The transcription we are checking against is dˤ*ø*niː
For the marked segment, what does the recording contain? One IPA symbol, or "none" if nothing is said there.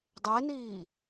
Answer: e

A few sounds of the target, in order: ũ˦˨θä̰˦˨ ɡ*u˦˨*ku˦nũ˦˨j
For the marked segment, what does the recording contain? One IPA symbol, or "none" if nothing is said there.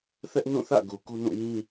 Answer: u˨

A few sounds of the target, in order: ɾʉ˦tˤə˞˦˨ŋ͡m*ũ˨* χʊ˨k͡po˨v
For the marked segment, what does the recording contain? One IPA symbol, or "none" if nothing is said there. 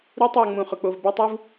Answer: ũ˨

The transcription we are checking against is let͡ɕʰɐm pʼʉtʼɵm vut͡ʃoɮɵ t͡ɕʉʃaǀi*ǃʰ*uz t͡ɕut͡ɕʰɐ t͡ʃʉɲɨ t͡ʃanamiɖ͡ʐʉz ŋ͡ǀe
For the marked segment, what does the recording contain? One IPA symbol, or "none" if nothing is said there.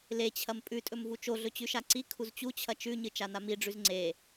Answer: kʰ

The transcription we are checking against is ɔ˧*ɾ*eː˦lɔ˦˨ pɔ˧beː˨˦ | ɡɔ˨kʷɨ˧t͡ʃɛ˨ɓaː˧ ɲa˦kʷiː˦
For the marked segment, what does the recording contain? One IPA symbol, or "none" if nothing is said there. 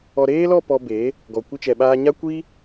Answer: ɾ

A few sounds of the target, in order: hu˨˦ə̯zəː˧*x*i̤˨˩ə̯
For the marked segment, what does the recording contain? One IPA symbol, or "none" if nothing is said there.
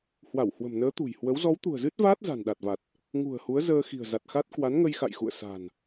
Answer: x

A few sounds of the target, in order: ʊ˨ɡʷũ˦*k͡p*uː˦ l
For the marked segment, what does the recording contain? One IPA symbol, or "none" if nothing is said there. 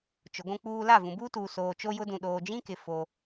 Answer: k͡p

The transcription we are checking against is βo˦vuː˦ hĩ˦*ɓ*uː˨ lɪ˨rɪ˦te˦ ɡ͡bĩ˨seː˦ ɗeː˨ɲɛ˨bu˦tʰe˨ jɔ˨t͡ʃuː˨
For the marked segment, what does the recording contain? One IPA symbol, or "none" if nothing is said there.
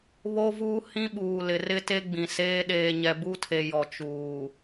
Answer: ɓ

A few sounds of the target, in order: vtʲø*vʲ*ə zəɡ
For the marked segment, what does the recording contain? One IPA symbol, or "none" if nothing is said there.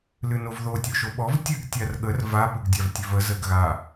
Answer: v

